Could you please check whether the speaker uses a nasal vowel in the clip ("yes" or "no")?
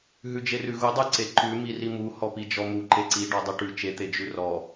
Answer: no